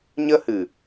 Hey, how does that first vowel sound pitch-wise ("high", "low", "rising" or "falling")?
high